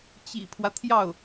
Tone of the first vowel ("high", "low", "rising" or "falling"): low